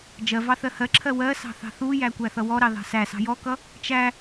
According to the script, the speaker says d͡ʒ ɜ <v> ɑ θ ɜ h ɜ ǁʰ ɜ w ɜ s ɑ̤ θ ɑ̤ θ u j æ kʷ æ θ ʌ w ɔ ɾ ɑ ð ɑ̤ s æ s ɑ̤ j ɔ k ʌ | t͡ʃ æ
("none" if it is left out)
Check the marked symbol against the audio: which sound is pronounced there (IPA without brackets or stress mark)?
v